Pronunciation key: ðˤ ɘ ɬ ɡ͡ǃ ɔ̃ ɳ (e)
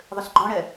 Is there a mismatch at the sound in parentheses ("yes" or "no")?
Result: yes